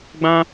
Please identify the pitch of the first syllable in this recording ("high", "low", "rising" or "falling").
high